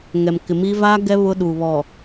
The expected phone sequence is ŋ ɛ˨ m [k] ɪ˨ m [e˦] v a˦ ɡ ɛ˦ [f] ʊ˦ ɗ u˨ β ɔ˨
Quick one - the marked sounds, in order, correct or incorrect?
correct, incorrect, incorrect

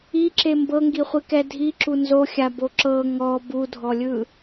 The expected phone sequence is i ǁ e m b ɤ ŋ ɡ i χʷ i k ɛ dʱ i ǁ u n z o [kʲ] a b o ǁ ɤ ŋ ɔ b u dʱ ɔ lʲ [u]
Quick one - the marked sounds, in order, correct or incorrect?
incorrect, incorrect

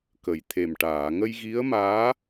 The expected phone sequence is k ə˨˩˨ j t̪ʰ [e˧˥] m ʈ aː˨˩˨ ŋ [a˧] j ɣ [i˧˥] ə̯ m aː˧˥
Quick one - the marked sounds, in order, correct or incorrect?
incorrect, incorrect, correct

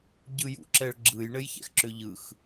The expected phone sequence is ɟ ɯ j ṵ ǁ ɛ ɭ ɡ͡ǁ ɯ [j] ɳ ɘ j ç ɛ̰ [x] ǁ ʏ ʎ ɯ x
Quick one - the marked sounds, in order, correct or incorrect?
correct, correct

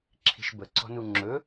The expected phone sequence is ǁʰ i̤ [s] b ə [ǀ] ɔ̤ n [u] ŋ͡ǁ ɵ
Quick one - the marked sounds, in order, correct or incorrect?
incorrect, correct, correct

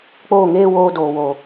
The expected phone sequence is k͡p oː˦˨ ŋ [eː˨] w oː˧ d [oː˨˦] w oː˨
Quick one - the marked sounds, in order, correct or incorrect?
incorrect, incorrect

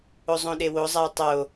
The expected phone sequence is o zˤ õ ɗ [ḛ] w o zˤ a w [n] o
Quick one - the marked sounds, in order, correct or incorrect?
incorrect, incorrect

